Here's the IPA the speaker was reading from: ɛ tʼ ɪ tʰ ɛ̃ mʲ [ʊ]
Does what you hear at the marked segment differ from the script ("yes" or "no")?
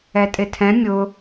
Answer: no